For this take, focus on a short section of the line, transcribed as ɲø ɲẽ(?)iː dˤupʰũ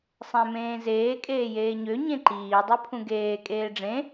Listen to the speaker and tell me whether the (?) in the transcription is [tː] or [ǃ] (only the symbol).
ǃ